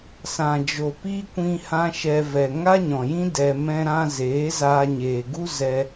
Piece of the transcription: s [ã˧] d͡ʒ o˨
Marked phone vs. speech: incorrect: ã˨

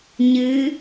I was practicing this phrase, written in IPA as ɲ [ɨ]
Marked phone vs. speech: correct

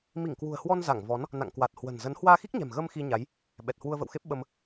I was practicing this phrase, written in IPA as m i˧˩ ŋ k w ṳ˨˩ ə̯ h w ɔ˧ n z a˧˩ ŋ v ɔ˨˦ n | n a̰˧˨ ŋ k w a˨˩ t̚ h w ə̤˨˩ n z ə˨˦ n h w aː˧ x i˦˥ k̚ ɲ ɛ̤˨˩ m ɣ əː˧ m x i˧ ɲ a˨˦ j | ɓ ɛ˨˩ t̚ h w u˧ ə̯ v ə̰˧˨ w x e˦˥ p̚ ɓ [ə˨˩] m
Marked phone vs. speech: incorrect: ə˧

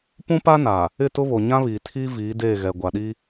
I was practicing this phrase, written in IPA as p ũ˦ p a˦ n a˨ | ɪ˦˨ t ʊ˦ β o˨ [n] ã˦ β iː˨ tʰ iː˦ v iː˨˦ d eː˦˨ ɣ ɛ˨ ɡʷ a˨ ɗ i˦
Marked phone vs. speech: incorrect: ɲ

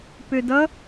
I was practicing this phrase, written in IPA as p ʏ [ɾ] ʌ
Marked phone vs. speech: incorrect: d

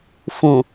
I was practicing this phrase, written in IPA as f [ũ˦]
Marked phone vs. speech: incorrect: ũ˨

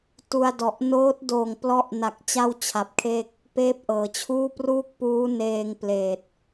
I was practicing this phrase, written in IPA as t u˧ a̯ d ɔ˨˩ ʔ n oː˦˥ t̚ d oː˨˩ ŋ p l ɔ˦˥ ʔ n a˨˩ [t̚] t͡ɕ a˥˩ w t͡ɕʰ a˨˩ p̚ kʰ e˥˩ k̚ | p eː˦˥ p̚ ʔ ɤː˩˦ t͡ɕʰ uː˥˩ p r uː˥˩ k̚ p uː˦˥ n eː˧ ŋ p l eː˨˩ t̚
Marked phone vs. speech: incorrect: k̚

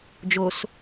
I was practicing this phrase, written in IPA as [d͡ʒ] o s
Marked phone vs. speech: correct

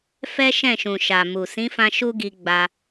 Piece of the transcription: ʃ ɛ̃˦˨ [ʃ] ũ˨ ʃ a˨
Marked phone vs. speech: correct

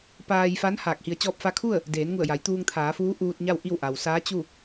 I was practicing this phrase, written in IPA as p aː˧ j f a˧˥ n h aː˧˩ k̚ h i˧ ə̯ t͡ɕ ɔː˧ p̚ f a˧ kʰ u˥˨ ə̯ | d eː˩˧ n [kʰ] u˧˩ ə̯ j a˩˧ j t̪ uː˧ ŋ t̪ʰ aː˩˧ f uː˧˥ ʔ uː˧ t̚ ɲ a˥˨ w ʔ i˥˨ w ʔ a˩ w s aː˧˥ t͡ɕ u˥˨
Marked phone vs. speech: incorrect: ŋ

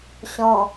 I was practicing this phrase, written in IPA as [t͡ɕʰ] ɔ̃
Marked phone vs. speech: incorrect: ɕ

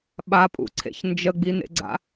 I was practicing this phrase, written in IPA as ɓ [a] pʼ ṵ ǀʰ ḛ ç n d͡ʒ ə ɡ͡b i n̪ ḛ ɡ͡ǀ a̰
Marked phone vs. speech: correct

